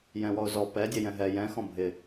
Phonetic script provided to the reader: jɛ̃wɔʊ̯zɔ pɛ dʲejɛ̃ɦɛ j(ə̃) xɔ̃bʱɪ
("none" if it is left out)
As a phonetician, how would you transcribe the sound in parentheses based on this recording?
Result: ɛ̃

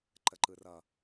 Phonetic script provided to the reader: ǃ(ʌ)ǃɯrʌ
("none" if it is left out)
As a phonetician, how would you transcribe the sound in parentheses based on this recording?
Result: ə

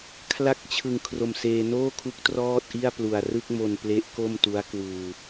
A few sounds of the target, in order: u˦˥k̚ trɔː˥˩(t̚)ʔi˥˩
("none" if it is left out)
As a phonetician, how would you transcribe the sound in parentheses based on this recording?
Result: t̚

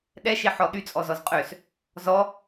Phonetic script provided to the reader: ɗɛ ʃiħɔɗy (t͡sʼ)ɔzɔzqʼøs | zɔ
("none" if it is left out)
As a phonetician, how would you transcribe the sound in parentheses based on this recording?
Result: t͡sʼ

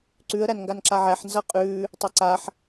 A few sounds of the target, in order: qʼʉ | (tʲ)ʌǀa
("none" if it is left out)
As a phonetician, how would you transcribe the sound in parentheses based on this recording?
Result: tˤ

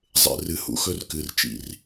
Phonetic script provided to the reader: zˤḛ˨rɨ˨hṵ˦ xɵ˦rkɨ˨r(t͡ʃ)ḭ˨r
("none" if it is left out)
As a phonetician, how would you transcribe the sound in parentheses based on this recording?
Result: t͡ʃ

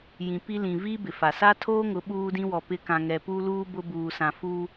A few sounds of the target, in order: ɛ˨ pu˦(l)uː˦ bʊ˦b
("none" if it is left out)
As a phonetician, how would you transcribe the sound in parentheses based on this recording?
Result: l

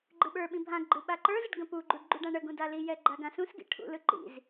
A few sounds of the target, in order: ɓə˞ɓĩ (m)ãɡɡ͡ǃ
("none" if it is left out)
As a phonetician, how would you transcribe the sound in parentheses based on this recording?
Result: bʱ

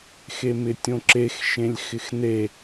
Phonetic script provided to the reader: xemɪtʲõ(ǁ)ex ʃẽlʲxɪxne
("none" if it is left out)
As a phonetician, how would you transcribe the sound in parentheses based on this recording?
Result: ǁ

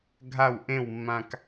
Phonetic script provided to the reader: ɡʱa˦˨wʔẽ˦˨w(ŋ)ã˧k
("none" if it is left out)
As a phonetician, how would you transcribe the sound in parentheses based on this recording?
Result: mː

